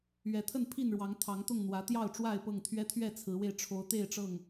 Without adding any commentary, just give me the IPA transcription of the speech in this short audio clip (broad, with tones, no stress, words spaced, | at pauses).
ɥɛ˨˦t̪ʰə˥˨npʰi˥˨nɻwɑ˨˦ŋ t̪ʰɑ˨˦ŋt̪ʊ˥˨ŋn̪wä˨˦ t̪jɑ˥˨ʊ̯ʈ͡ʂwa˥˨ɪ̯pɤ˥˨ŋt̪ʰɥɛ˦ t̪ʰɥɛ˥˨t͡sʰɹ̩˨˦we˧ɪ̯ ʈ͡ʂʰo˨˦ʊ̯t̪e˥˨ɪ̯ʈ͡ʂɤ˥˨ŋ